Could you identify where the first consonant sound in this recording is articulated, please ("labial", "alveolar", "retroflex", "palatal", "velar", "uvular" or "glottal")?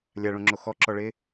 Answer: alveolar